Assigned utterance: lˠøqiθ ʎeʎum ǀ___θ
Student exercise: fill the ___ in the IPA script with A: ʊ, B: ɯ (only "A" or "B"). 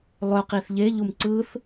B